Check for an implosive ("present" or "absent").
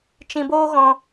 absent